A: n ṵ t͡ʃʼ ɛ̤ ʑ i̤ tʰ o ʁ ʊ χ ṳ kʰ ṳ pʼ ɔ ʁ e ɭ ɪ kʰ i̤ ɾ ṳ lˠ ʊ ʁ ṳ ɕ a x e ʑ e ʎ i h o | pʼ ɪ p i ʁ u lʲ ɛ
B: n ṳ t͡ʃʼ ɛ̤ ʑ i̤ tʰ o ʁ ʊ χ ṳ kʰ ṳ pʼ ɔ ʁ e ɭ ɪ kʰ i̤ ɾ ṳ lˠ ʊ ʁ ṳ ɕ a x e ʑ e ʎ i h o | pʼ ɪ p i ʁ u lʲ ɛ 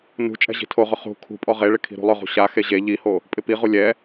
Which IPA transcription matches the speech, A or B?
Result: B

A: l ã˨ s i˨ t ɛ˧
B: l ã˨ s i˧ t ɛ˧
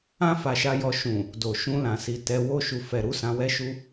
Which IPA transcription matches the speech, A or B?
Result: A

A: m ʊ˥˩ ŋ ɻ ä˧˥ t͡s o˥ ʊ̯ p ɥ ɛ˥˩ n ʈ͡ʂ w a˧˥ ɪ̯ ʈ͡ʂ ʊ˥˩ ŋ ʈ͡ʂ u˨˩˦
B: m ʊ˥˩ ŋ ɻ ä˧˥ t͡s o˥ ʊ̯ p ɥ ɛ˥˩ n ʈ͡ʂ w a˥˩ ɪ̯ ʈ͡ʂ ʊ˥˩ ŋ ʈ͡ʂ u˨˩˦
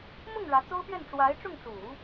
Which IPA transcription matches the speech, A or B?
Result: A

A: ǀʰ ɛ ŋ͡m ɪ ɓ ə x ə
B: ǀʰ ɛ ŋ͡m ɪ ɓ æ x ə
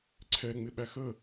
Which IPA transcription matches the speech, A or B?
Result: B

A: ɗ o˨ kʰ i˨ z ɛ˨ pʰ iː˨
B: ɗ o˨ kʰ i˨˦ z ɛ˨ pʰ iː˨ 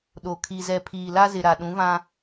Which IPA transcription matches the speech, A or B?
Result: A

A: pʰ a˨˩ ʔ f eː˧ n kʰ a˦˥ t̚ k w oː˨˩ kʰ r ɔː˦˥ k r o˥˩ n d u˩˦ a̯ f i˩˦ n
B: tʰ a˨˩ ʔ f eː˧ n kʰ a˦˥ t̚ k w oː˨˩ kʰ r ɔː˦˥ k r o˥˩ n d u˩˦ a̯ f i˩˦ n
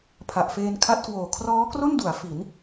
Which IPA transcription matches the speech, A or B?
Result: A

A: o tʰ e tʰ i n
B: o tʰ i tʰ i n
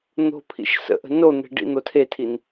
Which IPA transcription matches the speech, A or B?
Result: A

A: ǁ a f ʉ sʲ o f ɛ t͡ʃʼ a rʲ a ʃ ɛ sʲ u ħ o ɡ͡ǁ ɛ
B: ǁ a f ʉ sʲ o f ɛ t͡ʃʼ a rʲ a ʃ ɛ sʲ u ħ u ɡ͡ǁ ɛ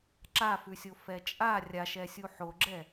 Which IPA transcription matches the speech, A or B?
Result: A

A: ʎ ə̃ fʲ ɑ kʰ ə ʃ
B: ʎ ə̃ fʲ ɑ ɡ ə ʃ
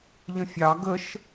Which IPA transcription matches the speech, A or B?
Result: B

